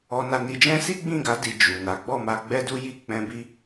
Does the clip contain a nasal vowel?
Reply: yes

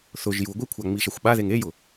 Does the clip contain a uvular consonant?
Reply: no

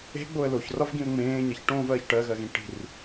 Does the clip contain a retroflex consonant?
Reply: yes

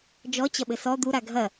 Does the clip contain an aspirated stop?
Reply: no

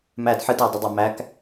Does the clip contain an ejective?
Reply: no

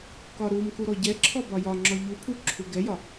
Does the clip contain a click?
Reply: yes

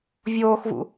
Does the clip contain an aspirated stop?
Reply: no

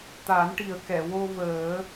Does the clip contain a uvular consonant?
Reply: no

